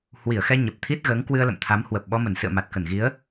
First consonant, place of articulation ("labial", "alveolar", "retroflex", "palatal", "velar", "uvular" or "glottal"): glottal